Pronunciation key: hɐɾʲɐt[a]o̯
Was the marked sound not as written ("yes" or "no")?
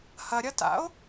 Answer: yes